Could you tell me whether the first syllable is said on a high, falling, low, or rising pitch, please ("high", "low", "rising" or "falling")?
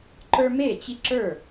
high